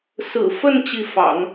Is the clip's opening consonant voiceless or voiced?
voiceless